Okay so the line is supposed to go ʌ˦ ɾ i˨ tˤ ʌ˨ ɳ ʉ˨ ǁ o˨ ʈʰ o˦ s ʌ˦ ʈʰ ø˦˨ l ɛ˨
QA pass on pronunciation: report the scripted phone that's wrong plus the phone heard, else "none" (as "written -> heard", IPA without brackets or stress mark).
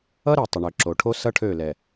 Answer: ʉ˨ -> ø˨